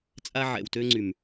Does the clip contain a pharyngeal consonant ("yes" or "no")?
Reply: yes